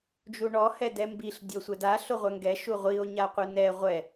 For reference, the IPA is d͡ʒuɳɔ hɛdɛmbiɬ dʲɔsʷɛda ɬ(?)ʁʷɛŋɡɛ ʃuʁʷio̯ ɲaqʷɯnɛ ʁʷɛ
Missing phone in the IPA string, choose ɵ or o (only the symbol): o